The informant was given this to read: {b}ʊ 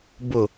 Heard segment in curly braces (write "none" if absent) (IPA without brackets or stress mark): b